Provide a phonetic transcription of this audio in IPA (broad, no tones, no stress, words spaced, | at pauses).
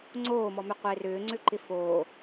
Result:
ŋ͡ǀoːmɔmʏ qʷɪːrʏːŋ͡ǀʏǃɪ foː